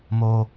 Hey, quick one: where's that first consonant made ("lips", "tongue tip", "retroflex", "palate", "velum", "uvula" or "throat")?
lips